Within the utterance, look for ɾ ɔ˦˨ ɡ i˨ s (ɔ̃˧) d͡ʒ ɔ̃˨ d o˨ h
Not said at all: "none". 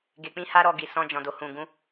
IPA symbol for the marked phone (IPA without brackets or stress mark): ɔ̃˧